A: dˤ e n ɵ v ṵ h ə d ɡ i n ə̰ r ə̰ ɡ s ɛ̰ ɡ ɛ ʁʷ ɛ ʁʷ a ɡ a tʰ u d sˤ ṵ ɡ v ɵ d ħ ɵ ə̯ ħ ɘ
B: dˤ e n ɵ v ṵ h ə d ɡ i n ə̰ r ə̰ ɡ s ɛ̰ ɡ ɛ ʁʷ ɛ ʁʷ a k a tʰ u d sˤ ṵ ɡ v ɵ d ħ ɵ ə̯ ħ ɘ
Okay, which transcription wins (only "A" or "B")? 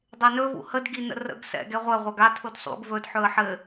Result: A